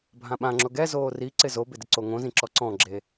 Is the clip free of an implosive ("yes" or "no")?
no